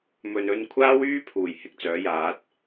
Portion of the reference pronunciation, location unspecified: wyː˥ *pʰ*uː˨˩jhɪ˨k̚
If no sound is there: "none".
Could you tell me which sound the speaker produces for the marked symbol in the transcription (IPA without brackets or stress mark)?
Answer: pʰ